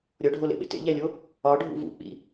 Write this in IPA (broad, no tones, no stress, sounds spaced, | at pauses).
ɾʲ ɒ ɖʱ o l ḛ ɓ ḛ t ḛ ʎ æ lʲ o | ɒ ɖʱ ṵ v ṵ k͡p ḭ